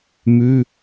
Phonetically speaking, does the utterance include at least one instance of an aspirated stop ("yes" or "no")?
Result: no